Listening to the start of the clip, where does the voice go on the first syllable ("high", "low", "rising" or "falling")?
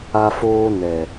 high